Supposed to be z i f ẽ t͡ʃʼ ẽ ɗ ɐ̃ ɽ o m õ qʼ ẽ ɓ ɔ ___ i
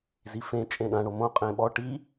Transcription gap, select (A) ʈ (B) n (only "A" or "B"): A